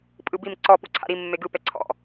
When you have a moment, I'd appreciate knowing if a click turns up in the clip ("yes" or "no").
yes